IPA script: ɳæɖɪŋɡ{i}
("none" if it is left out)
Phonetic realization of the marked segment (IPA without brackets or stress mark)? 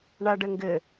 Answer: ɪ